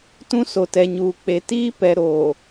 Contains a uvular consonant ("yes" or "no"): no